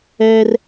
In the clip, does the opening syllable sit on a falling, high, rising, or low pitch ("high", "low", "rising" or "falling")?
high